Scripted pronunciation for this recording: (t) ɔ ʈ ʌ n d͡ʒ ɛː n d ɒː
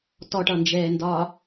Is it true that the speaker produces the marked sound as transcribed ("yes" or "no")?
yes